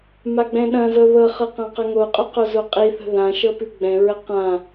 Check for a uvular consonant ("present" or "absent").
present